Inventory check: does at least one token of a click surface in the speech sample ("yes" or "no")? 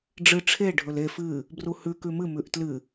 no